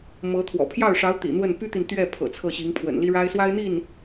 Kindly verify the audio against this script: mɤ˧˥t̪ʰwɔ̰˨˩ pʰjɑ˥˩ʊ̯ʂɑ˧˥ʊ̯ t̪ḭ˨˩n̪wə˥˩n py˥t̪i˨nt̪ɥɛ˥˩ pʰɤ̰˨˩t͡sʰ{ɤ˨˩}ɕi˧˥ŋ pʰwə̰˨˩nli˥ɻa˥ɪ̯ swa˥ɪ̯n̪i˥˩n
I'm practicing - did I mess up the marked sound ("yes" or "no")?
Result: yes